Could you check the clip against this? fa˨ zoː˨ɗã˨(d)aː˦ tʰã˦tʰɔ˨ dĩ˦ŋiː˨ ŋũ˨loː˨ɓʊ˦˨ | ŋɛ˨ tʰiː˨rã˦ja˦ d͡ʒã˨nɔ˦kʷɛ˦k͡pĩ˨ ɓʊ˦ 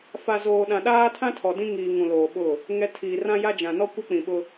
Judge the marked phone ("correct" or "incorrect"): incorrect